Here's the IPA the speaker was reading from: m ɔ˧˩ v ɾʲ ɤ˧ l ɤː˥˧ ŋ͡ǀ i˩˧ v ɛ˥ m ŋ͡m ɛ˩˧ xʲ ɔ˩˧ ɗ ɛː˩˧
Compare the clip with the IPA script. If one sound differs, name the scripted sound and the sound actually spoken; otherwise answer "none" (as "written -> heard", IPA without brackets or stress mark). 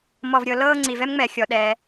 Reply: none